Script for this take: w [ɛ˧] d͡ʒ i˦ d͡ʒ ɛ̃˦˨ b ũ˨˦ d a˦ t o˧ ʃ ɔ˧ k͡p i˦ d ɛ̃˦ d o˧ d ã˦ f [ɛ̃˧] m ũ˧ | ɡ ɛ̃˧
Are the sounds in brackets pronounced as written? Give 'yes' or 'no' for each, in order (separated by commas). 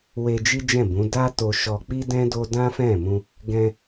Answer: no, no